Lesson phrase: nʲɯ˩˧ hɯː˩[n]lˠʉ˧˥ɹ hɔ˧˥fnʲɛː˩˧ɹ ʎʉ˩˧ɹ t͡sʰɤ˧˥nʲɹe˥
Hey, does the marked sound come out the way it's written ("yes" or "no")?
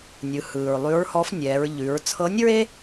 no